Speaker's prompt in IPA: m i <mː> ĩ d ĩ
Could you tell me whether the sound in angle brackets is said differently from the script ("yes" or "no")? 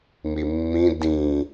no